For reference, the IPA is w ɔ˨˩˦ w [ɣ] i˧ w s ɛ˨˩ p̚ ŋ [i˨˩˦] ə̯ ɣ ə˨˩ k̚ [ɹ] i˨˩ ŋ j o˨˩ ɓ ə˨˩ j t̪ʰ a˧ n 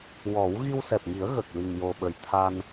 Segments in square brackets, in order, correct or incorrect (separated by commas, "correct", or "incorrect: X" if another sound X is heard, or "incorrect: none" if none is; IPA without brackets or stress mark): correct, correct, incorrect: l